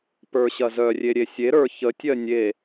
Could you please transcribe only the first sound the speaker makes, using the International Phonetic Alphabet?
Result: p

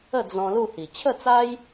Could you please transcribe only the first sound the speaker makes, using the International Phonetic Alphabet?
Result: ə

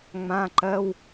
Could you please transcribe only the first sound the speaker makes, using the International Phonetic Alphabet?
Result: ŋ͡m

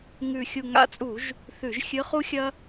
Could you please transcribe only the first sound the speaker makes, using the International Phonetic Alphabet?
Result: ŋ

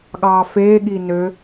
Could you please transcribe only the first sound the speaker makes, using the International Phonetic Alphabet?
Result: ɠ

